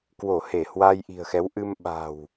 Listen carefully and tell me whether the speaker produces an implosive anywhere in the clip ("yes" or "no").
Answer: yes